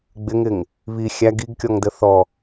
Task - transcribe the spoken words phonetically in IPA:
ɡ͡b ɪ ŋ ɪ ŋ | β i xʲ æ ɡ i ɡ kʲ ɔ ŋ d ə θ ɔ

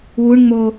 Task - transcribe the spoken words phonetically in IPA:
w u ɳ ŋ͡m o

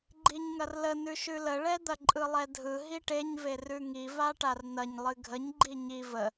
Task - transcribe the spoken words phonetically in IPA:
ɡ͡ǃ i ɲ ŋ ɐ r l ə n ʉ ʃ ʉ l ə ɭ ɛ d̪ ɐ ǃʼ ɯ lˠ ɛ dʱ ɯ ɦ i ʈ e ɲ v e r ʉ ŋ i v a ʈ a r n̪ ɐ ɲ lˠ ɨ ɡʱ ə ɲ ɡ͡ǃ i ɲ i v ə

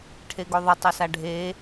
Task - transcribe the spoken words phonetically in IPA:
ʈʰ e ɡ o ðˤ ə tˤ ə s a ɖʱ e

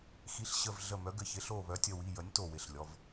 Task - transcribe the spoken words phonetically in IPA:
x i˩˥ ɬ ɕ ə˧˩ v ɮ ə˧˩ m œ˩˥ ɡ ɘ˩˧˩ ç ɪ˩˥ ɬ o˧˩ β œ˩˥ tʲ ə˩˧˩ w i˩˧˩ j ə˩˥ nʲ t o˧˩ w ɪ˩˧˩ ɬ lʲ ɔ˩˧˩ v

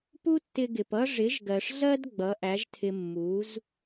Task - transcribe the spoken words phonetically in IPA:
p u˥ tː ɪ˧ ɡ ɪ˩ p ʌ˥ ʐ ɪ˩˥ ʒ ɡ ɜ˩ ʂ ɮ ɜ˥ d ɡ͡b ʌ˩˥ ʔ æ˩˥ ʒ tʰ ɪ˧ mː u˩˥ z

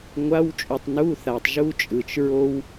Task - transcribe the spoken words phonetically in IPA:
ŋʷ a˧˥˧ w t͡ʃʼ u˨ tˤ n u˧˥˧ θ a˨ tˤ ʒ u˥ t͡ʃʼ ɯ˨ t͡ʃ ɹ o˥ w

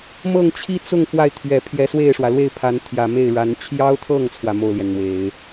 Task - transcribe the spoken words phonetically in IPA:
m ɤ˥˩ ŋ t͡ɕʰ i˥ t͡s ʊ˥˧ ŋ f w a˥˩ ɪ̯ t̪ʰ ɥ ɛ˨˩ pʰ j ɛ˧˥ s w e˥˩ ɪ̯ ʂ w ä˩ l w e˥˩ ɪ̯ pʰ a˧˥ n t̪ʰ j ä˨˩ m e˥˩ ɪ̯ ɻ a˧˥ n t͡ɕʰ j ɑ˥ ʊ̯ t̪ʰ ɤ˥˩ ŋ t͡sʰ w ä˩ m o˥˩ ʊ̯ l j ɛ˩ n n̪ w e˨˩˦ ɪ̯

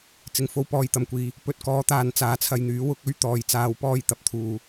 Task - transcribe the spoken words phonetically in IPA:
t͡s ɪ˨˩ ŋ f o˨ w p ɔː˨ j t̪ ɐ˨˩ m kʷ iː˨ | p ɵ˨ t̚ k ɔː˨˥ t̪ aː˨ n t͡s aː˨ t͡sʰ ɐ˧ j n̪ yː˨˥ w ʊ˨˥ k̚ ɵ˥ ɥ t̪ ɔː˨˧ j t͡s aː˨˧ w p ɔː˧ j t̪ ɐ˨ p̚ t̪ʰ uː˨

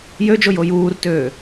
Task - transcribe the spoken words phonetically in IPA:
j ø d͡ʒ o j o j uː r t øː

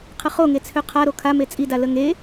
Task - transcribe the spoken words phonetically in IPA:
qʰ ə χ o ŋ e t͡sʰ ø qʰ a ɾ o kʰ a m e t͡sʼ i d a l ə ŋ e

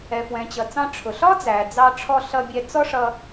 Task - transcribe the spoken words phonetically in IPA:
ɛ˩ f w ɛ̃˩ t͡ɕ ʌ˩ t͡s ɑ̃˧ ʈ͡ʂʰ ʊ˩ ɬ ɒ˥ d͡z æ˩ d͡z ɑ˧ ʈ͡ʂʰ ɔ˧ ɬ ʌ˧ bʲ ɛ˧ t͡s ɔ˥ ʂ ʌ˧

